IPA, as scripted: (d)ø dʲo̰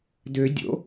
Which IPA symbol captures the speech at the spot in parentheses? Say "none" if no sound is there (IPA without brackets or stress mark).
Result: d